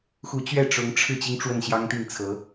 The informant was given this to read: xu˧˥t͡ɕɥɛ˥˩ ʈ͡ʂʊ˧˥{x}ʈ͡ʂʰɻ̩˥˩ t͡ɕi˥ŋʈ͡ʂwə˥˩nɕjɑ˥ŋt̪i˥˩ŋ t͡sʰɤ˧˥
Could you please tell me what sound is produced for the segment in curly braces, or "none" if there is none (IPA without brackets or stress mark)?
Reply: ŋ